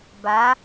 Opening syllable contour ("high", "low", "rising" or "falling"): rising